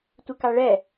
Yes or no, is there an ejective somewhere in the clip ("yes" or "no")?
no